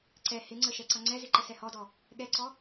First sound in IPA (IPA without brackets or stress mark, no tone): ǀ